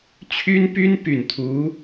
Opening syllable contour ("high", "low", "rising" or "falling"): high